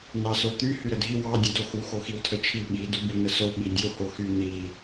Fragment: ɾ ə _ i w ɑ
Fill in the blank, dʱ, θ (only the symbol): dʱ